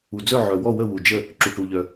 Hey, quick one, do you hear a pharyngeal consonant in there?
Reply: yes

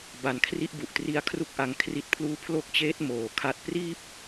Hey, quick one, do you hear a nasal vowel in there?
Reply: no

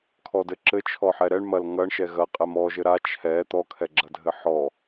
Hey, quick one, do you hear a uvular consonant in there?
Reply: yes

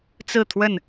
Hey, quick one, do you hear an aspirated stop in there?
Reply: yes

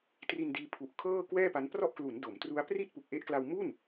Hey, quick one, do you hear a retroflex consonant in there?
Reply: no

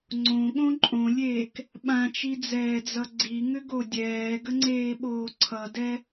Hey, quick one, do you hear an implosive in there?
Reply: yes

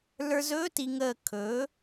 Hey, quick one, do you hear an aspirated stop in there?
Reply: yes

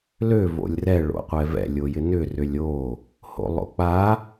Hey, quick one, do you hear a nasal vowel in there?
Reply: no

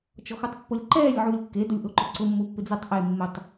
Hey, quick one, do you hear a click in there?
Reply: yes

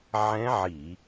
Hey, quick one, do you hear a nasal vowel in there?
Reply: yes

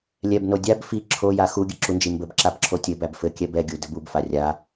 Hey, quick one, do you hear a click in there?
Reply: yes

